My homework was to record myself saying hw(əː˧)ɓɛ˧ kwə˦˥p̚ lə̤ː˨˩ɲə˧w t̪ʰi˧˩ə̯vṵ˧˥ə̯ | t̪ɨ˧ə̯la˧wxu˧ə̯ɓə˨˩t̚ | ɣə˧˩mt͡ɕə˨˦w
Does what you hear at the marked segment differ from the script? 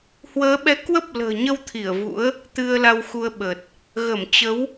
yes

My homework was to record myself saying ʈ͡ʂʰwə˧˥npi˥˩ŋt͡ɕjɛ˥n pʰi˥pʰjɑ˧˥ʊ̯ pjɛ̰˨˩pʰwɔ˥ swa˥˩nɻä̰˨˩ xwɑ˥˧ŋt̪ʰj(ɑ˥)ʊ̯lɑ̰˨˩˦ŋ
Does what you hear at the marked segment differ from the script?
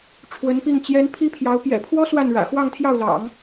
yes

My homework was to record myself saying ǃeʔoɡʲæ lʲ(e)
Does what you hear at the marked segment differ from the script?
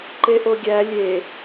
no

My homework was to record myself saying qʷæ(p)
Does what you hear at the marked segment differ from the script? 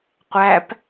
no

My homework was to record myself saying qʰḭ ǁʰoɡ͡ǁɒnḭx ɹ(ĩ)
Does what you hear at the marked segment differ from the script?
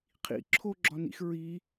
yes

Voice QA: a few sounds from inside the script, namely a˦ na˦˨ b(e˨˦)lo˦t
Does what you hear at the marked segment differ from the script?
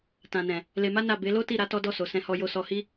no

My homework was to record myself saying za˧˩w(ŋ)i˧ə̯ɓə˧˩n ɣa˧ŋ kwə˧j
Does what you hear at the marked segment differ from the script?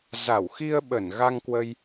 yes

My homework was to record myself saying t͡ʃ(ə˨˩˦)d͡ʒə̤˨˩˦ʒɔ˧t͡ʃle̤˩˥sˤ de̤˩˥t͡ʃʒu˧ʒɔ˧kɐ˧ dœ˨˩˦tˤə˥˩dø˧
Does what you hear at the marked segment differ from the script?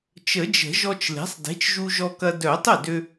no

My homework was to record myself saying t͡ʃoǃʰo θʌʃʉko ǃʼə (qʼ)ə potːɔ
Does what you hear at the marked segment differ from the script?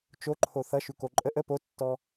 yes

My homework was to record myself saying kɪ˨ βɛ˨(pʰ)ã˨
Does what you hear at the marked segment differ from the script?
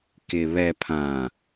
no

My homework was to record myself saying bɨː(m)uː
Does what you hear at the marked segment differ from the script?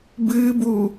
yes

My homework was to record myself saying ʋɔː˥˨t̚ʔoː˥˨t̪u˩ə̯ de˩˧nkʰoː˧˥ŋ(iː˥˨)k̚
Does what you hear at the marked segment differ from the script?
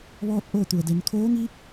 yes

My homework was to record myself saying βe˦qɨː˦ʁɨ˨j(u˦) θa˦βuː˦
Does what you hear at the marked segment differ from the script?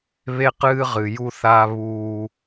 no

